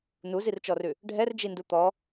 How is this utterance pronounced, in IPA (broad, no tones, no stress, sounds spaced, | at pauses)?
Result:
n u z i r t͡ʃ ɔ r ʉ | ɖʱ ɛ r d͡ʒ i n d u t̪ ɔ